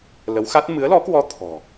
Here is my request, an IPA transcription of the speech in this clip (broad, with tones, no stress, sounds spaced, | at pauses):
l ə˨˦ w x a˦˥ t̚ m ɨ˨˦ ə̯ l ɔ˨˦ k w ɔ˧ t̪ʰ ɔ̤˨˩